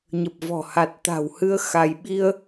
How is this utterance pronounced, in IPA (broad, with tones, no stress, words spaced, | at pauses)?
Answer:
ɲə˨˩p̚vɔ̤˨˩ ha˨˩t̚t̪a̤˨˩whɨ˧ə̯ xa˧j ɓi˧ə̯